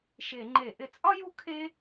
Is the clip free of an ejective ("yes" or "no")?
no